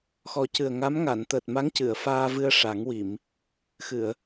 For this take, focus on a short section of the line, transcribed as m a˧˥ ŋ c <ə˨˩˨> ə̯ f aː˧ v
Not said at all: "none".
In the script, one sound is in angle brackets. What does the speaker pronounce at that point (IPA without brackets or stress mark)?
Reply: ɨ˨˩˨